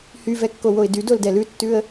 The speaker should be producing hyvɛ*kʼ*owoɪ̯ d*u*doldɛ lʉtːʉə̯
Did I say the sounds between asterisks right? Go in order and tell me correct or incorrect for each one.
incorrect: kː, incorrect: y

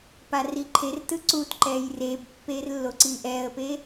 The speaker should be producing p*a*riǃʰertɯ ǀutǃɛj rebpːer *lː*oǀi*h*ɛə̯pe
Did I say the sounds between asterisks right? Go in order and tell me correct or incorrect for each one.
correct, correct, incorrect: ʔ

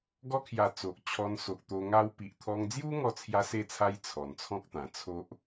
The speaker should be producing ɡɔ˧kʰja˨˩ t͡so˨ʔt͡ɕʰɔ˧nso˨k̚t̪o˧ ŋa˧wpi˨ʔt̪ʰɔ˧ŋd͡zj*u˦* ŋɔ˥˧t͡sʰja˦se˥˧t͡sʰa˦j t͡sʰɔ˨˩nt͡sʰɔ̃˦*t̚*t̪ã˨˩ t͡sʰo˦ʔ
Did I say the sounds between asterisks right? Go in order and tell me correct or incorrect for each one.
correct, incorrect: k̚

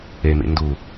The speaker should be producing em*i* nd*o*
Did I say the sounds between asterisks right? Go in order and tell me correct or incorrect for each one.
incorrect: ḭ, incorrect: u

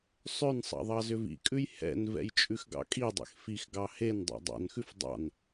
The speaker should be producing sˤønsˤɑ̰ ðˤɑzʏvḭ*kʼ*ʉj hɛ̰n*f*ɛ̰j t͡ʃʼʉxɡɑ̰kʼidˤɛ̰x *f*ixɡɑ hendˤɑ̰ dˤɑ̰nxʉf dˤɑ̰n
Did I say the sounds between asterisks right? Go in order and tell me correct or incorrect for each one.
correct, incorrect: v, correct

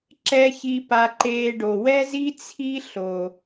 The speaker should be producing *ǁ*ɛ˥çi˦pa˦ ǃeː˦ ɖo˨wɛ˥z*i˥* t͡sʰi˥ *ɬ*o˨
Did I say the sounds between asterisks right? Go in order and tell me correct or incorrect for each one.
correct, correct, correct

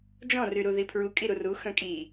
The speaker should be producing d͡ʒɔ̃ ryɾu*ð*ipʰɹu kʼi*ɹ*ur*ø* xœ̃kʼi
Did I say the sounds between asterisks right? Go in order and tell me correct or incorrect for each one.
correct, incorrect: ɾ, incorrect: u

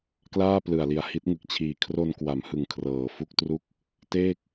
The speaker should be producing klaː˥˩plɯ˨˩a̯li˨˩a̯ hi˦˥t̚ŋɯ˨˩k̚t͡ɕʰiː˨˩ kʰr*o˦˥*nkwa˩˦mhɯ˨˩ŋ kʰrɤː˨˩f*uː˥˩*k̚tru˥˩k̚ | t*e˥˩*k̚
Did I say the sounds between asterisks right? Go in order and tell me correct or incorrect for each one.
incorrect: o˧, incorrect: u˥˩, incorrect: eː˥˩

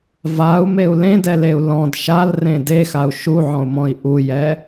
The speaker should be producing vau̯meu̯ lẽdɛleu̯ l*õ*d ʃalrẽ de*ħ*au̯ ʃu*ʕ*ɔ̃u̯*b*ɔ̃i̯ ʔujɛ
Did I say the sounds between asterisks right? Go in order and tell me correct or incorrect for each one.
incorrect: ɔ̃, incorrect: x, correct, incorrect: m

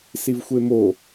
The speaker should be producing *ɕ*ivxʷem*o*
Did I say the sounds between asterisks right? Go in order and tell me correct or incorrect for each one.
incorrect: s, correct

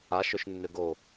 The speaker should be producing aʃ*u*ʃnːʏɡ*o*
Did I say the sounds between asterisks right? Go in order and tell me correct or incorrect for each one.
incorrect: ʏ, correct

